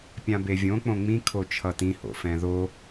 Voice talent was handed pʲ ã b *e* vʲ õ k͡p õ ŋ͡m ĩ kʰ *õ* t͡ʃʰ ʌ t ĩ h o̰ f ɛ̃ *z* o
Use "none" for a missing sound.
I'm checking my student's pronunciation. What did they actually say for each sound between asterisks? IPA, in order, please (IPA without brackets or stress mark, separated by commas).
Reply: e, o, ð